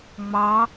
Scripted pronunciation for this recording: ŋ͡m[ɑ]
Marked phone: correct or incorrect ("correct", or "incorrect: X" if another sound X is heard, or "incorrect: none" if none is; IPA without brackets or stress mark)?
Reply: correct